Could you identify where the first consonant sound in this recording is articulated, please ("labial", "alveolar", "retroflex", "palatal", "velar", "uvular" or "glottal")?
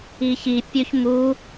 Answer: palatal